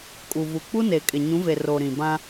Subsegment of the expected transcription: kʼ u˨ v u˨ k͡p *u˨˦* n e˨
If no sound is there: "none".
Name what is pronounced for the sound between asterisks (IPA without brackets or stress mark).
u˦